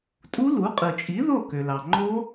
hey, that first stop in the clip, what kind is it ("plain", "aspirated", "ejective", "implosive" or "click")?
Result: ejective